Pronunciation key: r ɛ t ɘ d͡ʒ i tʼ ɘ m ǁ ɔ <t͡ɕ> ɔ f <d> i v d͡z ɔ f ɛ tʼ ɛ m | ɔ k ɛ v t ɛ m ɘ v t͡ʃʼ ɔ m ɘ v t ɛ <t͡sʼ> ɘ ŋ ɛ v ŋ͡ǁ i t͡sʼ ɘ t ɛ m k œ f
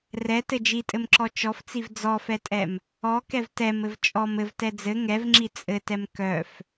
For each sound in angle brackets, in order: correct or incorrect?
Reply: incorrect, incorrect, incorrect

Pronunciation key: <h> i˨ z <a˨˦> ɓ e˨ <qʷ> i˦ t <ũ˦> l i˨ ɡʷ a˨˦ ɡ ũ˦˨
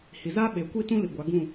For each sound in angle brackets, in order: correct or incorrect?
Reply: correct, incorrect, incorrect, correct

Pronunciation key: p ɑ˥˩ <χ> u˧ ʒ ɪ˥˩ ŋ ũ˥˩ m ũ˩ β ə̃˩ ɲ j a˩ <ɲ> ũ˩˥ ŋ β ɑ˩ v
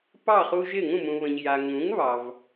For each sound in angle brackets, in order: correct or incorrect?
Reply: correct, incorrect

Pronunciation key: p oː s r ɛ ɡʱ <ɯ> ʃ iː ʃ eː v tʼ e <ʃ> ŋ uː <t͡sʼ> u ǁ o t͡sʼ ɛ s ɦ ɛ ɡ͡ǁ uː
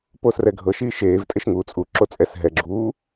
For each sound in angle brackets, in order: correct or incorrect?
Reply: incorrect, correct, correct

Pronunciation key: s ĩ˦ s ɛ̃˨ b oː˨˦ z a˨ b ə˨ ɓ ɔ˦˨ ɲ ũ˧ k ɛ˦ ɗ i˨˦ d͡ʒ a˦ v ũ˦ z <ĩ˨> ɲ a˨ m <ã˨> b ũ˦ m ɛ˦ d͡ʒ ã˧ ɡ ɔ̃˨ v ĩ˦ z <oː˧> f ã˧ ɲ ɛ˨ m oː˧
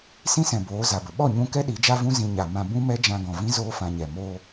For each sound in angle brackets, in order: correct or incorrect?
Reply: incorrect, correct, incorrect

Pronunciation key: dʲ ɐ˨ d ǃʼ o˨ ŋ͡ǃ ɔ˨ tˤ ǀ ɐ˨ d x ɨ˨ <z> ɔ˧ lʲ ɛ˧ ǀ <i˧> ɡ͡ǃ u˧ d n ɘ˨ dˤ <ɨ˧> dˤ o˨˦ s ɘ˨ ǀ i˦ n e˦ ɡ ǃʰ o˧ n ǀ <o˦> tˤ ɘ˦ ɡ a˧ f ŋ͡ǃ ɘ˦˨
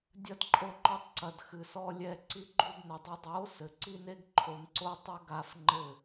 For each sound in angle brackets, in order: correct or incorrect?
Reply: incorrect, correct, incorrect, correct

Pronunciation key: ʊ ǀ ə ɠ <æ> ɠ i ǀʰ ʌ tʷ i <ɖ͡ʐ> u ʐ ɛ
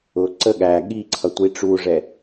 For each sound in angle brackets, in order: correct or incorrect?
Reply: correct, incorrect

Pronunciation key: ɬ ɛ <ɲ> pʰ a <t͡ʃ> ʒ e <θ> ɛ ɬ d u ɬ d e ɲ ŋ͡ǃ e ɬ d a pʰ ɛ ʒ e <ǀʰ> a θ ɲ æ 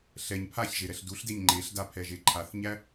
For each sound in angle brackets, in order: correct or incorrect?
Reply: correct, incorrect, incorrect, incorrect

